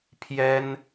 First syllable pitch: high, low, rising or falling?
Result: high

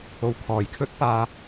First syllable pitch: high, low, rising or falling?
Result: low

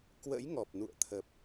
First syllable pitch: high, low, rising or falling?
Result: rising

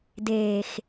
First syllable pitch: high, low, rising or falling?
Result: low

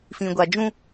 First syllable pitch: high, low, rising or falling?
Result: low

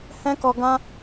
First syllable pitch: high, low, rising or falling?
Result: high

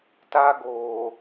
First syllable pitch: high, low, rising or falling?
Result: high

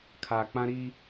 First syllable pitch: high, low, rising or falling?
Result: low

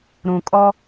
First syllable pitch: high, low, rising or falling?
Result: low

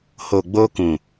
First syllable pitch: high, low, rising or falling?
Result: low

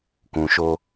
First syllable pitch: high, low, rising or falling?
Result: low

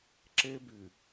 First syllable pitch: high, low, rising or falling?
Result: high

